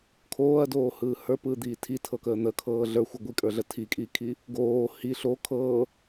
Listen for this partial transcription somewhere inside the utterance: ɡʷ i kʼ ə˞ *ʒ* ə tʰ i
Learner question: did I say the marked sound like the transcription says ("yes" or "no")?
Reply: no